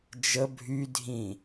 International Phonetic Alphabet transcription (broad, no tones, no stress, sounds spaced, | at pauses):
d͡ʒ ə bʱ y dʱ ĩ